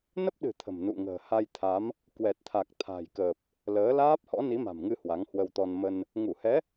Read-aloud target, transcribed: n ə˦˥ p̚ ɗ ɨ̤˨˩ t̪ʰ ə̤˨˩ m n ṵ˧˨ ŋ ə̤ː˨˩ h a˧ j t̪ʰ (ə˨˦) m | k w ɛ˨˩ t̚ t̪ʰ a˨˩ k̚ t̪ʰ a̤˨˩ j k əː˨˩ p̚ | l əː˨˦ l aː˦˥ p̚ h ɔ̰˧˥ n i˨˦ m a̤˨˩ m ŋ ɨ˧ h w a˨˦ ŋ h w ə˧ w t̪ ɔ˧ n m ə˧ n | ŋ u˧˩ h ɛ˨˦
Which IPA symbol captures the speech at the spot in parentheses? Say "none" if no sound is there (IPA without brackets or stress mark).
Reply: a˨˦